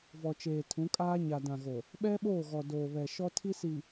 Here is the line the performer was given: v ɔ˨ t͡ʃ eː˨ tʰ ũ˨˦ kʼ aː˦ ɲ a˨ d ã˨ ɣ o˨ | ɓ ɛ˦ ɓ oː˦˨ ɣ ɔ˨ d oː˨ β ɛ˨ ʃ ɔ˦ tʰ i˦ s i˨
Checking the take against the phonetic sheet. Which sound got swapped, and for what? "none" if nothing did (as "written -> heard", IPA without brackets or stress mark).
none